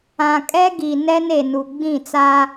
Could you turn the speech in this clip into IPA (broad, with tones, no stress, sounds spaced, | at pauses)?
ã˨ kʼ ɛ˦ ɡ i˨ n ɛ˦ n e˨ n u˨ ɡ͡b ĩ˦˨ t͡s a˦